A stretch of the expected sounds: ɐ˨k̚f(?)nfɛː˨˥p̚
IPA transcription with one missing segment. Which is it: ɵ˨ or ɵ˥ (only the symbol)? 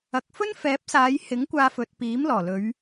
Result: ɵ˥